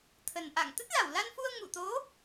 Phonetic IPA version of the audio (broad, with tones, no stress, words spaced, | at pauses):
t̪ʰə˨˩n ʔa̰˧˨ŋ t̪ə˦˥t̚la˧˩wla˧nfu˧ə̯ ŋṵ˧˨t̪o˨˦